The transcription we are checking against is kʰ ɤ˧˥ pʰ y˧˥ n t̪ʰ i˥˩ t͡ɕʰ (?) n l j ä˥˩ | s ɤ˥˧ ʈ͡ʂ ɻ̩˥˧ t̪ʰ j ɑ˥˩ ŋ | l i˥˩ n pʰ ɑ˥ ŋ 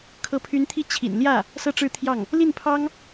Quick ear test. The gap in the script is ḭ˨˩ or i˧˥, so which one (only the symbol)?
ḭ˨˩